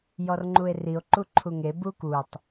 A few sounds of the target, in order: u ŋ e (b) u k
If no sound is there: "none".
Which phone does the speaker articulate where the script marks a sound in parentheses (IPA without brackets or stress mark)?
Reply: b